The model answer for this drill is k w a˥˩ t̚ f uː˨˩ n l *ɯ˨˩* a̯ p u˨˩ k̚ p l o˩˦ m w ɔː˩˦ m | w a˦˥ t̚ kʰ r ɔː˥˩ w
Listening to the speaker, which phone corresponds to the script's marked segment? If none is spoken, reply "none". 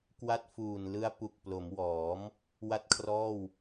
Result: ɯ˦˥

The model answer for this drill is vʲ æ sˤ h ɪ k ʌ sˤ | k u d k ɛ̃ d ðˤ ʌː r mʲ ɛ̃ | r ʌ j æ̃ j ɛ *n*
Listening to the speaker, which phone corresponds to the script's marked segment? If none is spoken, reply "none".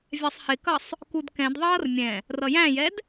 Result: d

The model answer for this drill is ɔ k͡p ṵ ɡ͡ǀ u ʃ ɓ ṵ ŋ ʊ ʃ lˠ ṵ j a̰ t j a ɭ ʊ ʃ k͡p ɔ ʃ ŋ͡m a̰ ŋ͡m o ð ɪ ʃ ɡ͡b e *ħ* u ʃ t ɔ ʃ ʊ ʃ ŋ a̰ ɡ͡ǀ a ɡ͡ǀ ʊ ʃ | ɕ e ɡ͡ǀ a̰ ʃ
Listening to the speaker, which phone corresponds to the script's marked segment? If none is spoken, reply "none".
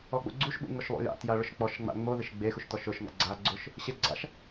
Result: x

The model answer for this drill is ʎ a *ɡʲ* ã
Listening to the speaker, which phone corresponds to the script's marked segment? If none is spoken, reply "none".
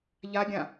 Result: ɡʲ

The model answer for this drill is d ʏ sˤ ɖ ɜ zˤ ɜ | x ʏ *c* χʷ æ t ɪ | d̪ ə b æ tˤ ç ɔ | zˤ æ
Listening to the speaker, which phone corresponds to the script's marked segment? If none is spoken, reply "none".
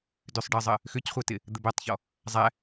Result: c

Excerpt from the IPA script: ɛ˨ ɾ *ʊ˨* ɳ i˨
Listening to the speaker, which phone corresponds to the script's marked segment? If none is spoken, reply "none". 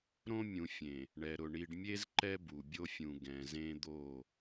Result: ʊ˨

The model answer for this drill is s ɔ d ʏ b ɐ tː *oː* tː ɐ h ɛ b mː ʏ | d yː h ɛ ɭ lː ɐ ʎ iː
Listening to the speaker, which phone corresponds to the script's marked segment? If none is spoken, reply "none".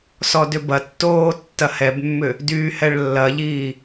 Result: oː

